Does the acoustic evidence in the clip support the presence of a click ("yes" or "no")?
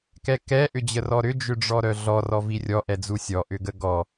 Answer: no